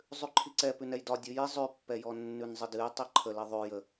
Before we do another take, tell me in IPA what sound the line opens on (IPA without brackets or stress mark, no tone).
zˤ